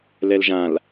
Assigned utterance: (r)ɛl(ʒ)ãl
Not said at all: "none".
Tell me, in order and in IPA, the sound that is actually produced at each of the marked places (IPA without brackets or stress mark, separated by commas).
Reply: l, ʒ